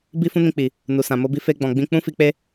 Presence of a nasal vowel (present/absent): present